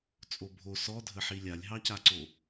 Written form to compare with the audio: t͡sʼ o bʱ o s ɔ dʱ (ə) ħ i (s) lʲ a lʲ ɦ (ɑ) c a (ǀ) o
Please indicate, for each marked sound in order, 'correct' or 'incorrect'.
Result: correct, incorrect: none, correct, correct

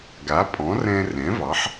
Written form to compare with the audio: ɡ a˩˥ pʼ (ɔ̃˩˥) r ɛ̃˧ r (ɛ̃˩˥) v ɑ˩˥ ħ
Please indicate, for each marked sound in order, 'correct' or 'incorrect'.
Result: correct, correct

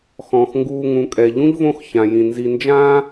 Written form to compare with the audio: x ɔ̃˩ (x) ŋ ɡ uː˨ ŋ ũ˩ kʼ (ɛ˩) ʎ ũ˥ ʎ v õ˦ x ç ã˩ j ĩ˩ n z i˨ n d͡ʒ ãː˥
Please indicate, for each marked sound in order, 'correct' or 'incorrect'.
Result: correct, correct

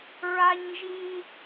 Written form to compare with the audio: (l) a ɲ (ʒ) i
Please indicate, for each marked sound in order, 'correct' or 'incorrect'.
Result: incorrect: ɹ, correct

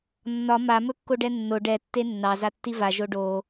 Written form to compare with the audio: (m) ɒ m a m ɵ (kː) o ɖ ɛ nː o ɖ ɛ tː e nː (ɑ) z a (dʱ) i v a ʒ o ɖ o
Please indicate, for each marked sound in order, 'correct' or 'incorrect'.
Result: incorrect: nː, correct, correct, incorrect: tː

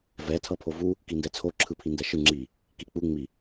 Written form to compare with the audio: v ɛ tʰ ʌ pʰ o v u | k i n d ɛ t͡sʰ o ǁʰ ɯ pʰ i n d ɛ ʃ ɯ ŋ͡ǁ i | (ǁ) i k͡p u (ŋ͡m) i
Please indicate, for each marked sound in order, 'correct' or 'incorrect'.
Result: incorrect: k, correct

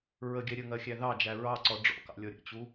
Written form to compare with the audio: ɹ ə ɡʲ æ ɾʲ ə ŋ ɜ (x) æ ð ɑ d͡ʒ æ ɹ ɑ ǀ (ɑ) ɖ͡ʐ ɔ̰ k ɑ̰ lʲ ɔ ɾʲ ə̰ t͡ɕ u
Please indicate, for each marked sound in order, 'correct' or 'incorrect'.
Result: incorrect: xʲ, incorrect: ɔ

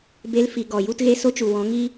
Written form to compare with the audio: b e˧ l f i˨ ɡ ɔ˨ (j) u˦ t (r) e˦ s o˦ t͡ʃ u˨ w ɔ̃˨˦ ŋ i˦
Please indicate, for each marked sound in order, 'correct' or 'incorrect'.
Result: correct, incorrect: ɣ

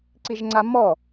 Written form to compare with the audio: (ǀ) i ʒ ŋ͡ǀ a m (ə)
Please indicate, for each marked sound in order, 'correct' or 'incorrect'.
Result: correct, incorrect: ɔ

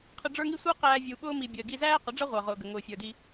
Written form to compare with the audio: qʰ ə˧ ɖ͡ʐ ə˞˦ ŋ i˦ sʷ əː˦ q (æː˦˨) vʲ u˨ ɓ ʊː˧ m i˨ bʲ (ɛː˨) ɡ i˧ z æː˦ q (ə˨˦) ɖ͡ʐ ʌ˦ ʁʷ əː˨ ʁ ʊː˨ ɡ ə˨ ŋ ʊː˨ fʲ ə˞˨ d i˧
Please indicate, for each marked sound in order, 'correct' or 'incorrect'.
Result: incorrect: æː˧, incorrect: əː˨, correct

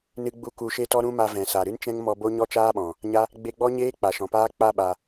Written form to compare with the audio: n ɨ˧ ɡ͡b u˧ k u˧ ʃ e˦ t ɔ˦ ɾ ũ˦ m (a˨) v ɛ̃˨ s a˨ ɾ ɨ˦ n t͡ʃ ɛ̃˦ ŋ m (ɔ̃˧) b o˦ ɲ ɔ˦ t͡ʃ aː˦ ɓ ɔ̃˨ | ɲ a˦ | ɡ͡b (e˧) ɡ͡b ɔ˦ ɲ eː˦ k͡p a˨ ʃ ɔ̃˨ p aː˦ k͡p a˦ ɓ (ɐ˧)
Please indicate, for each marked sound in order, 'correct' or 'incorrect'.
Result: incorrect: a˧, incorrect: ɔ˧, correct, incorrect: a˧

